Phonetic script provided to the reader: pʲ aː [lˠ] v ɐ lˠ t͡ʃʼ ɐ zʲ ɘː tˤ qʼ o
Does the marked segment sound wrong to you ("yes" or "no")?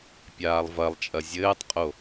no